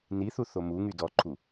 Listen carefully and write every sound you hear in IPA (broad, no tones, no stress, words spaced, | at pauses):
niθu θomuŋy dɔǃʰu